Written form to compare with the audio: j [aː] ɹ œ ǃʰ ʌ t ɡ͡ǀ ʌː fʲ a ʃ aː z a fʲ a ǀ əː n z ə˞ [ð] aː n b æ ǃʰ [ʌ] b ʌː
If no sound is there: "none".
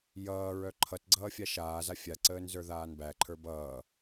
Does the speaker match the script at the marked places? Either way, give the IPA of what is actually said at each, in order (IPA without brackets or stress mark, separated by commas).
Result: ʌː, ð, ə˞